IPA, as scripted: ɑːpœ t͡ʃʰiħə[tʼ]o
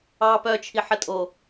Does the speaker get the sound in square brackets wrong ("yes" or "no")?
no